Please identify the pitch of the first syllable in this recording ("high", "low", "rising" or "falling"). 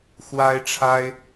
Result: high